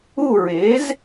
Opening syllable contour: falling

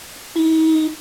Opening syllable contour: high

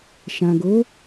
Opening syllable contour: low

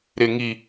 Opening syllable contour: low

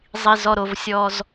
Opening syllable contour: low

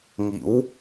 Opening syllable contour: rising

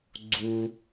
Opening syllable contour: high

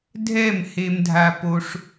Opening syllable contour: falling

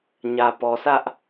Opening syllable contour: low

